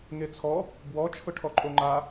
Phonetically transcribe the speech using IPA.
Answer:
ŋet͡sʰɔ | bwɔ t͡ʃʰʊʈʰɔǃʼoŋ͡ǃa

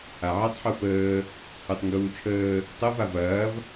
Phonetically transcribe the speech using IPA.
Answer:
aʕɐtˤ ħufəː | utˤŋɡuːt͡ʃʰəː | tˤuv avɐːv

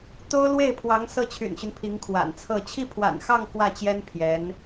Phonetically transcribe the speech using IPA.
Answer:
t̪o˥ʊ̯ lwe˥˩ɪ̯pʰwɑ˧˥ŋ sɤ˥˩t͡ɕʰy̰˨˩nɕy˦n pʰi˧˥ŋkʰwa̰˨˩nt͡sʰɤ˥˧ t͡ɕʰi˥˩pʰwa̰˨˩nxɑ˥˧ŋ kwä˥˩t͡ɕjɛ˥n pʰjɛ˧˥n

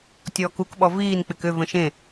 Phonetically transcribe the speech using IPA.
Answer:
tʲɔːkukɓɔ viːnk͡pɪk ʏvə̃ ʃẽ

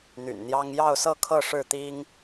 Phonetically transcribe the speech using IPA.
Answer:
n̪y̰˨˩nn̪jɑ˦ŋ jɑ˥˨ʊ̯sɤ˥˨kʰɤ˥˨ ʂɻ̩˥˨t̪i˦ŋ

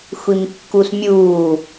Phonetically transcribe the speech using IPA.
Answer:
xʷimkːusmʲuː

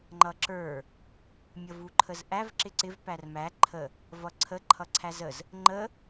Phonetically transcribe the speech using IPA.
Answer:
ŋ͡ǃʌǁə˞ | mʲʌvuǃʰəzʔæv ǁɪǀɪv pærmæ ǃʰə | vʌǀʰə ǃʰʌǀʰæzəz | ŋ͡ǃə

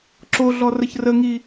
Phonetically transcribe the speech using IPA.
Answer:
ǁoɮɔ rəçrəŋi

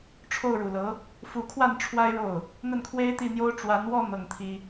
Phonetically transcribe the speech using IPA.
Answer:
ʈ͡ʂʰo˥˩ʊ̯ɻu˨˩lɤ˧˥ | fu˧˥kʰwa˥˩n ʈ͡ʂʰwa˥ɪ̯ɻo˥˩ʊ̯ | n̪ə˥˩nkʰwe˥ɪ̯t̪i˥˩n̪jo˥ʊ̯ ʈ͡ʂwa˧˥nwɔ˥˧ n̪ɤ˥˩ŋt̪ʰi˥

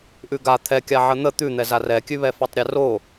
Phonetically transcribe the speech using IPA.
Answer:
ʔʉɡa t̪ʰɛkʲa ʕən̪ə t̪ʉn̪ɛzar ɛkʲʉβɛ fatˤɾʲɛro

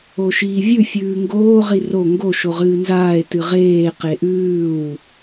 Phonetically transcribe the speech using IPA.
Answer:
oʃiːvʲʉ fʲʉːŋɡoː ʁiro ŋɡo ʃoʁɨːnzaːe̯ tɨʁeː qeʔʉːw

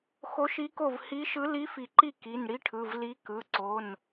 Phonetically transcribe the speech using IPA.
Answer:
xo˧˥ʃi˧˥ko˥˩v hi˧˥ʃɯ˧˥ li˧˥fi˨˩˦ǃi˥˩ ki˩˧˩n ɽi˧˥ʈʰɯ˩˧˩v li˧˥ kɯ˩˧˩ǀo˩˧˩n

